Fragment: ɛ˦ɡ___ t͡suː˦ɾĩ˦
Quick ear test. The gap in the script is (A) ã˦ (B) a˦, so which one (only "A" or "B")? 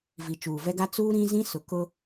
B